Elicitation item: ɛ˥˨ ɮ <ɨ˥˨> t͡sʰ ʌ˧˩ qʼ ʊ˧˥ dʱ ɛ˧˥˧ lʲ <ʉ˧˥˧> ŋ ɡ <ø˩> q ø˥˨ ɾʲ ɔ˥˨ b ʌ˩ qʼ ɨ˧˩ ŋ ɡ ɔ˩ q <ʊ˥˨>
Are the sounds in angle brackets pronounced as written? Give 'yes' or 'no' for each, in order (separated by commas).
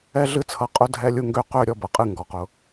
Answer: yes, no, no, no